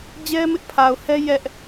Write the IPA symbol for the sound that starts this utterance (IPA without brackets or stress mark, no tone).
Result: d͡ʑ